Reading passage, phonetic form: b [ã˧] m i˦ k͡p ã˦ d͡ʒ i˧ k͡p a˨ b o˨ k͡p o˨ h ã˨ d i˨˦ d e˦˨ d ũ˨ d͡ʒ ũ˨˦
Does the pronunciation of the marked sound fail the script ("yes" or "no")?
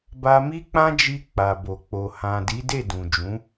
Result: yes